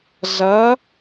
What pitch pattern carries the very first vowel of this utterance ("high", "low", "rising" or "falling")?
rising